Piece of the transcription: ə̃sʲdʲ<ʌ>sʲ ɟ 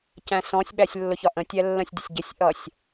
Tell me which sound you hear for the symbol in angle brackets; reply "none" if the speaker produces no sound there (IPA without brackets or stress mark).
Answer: ʌ